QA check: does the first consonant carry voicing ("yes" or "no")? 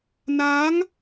yes